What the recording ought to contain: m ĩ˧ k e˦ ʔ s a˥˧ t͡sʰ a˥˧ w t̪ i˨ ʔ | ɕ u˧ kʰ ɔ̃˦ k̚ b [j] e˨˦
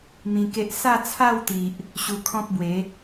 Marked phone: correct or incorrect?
incorrect